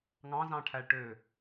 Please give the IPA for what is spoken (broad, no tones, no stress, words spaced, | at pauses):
ŋɑ̃zɑ̃ʈʰæɭʈø